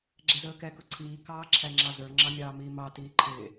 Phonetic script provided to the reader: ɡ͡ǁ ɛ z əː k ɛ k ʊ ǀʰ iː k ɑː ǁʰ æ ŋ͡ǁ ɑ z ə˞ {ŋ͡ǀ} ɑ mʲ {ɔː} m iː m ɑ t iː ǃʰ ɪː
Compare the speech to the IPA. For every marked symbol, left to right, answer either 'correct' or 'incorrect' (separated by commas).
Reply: incorrect, incorrect